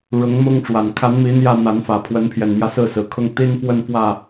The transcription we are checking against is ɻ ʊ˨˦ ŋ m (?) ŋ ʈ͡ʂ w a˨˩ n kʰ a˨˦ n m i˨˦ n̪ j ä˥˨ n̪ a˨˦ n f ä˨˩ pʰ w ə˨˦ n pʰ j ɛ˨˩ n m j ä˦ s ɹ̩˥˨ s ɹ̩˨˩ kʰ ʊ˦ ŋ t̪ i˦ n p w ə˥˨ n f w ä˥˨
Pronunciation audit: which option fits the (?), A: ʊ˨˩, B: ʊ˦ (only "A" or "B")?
B